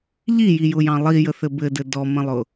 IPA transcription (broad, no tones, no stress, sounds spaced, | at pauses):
ʎ i j i j ʊ j ɑ̃ lˠ i j ə θ ɘ b ɘ d ɘ d ɔ m ə̃ lˠ ʊ